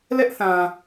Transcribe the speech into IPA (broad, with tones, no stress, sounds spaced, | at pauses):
l ɛ˦ ʔ θ ã˨